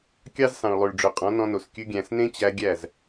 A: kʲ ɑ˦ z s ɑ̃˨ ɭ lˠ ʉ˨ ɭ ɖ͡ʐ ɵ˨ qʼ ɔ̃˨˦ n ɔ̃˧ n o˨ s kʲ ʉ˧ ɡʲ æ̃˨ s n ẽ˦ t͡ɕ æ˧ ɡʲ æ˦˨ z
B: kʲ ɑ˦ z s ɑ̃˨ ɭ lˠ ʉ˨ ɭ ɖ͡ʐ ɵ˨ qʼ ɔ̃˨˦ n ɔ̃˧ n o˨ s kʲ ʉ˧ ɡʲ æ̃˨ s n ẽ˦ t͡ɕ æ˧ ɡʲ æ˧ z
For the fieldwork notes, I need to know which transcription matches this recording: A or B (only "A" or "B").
A